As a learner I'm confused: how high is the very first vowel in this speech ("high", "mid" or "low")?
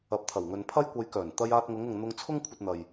low